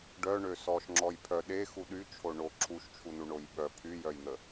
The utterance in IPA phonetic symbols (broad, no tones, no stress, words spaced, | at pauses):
ɖœɳø sɔʃŋ͡ǁɔj pʰœ ɗexu ɗyt͡ʃʰo ɳo ǁʰuʃt͡ʃʰunuɳoj ɓœ pʰyjœjn̪ə